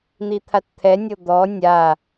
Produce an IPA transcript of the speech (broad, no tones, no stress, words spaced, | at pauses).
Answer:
n̪it̪ʰatt̪ʰɛnʲɤ d̪ɔ nʲa